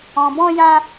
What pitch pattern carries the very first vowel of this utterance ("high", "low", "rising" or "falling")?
low